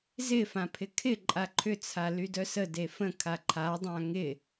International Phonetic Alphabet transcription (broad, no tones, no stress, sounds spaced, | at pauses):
z ɪ f ã pʰ ɪ kʰ ɪ ǃʼ a ǃʰ ʏ t͡sʰ a l y d œ s ə d e f ə̃ kʰ a ǃʰ a dˤ ã ŋ ɪ